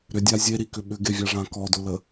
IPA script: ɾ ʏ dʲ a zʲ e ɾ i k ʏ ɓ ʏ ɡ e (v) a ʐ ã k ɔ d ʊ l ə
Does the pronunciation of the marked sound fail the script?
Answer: yes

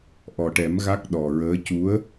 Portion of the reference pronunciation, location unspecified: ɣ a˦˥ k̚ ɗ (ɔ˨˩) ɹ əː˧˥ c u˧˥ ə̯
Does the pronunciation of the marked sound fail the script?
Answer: no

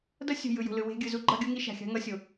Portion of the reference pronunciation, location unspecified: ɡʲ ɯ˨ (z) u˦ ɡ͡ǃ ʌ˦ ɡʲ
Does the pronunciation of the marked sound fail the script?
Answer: no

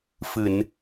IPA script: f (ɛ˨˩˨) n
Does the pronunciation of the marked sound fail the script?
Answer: yes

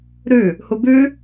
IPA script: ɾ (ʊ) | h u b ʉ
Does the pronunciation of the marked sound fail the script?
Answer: yes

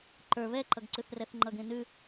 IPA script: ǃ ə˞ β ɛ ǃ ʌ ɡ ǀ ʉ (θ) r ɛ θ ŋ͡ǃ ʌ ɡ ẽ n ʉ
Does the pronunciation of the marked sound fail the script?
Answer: no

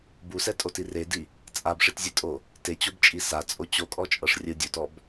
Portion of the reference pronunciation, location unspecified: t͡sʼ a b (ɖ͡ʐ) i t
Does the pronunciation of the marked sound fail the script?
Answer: yes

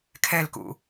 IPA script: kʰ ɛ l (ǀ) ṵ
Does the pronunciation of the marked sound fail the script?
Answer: yes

